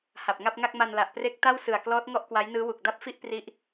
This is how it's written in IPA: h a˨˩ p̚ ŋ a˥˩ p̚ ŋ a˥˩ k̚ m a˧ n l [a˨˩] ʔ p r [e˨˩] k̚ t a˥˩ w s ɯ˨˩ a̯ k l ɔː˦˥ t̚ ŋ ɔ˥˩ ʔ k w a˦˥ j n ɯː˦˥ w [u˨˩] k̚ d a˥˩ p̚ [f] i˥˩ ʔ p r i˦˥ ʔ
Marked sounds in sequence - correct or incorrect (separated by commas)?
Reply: correct, incorrect, correct, correct